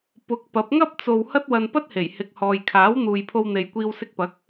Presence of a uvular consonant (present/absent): absent